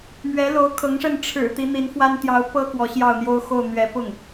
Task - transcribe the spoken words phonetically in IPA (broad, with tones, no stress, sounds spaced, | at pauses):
m ɥ ɛ˧˥ l o˧˥ ʊ̯ kʰ ɤ˧˥ ŋ ʂ ə˥˩ n ʈ͡ʂʰ ɻ̩˨˩ t̪ i˧˥ n̪ i˧˥ n f w a˥ n t̪ j ɑ˧˥ ʊ̯ p ɤ˥ k w ɔ˧˥ ɕ j ɑ˥˩ ʊ̯ n̪ j o˥ ʊ̯ x o˥˩ ʊ̯ n̪ ɥ ɛ˧˥ p ʊ˥˩ ŋ